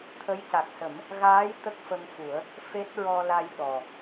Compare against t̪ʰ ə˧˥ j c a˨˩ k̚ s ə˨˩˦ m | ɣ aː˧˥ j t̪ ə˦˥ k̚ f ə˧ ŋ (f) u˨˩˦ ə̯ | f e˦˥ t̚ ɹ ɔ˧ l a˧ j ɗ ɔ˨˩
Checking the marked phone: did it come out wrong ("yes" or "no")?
no